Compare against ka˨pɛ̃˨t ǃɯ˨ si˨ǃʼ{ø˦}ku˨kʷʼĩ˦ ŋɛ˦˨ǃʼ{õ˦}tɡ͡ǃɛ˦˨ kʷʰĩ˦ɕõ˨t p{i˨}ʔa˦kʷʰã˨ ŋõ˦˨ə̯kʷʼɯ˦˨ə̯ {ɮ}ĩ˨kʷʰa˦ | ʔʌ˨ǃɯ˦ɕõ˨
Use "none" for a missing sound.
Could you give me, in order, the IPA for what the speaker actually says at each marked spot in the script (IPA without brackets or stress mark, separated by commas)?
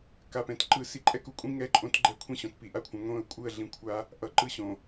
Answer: ɛ˦, õ˦, i˨, ɮ